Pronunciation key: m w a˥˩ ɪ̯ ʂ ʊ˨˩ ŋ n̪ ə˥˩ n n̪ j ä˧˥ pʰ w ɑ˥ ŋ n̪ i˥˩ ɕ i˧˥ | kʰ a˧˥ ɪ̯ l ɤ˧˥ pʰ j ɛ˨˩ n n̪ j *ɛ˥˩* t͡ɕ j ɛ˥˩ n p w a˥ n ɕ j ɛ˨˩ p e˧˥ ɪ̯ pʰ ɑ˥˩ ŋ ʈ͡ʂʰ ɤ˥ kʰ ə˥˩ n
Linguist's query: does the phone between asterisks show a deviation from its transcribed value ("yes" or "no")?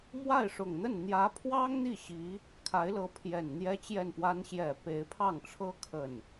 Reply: yes